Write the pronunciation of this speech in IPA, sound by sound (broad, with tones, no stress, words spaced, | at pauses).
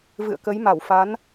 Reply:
vɨ̰˧˨ə̯kə˨˦jma˧˩w fa˨˦n